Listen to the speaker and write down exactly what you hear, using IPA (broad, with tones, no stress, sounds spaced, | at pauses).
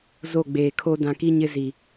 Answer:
z o˦˨ ɡ͡b eː˨ kʰ o˦ d ã˨ k i˦ ɲ ɪ˦ z i˨